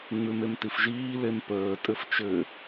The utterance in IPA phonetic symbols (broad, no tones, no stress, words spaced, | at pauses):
ŋ͡mʉmemtifʒiː lempəː tʼɘft͡ʃɘ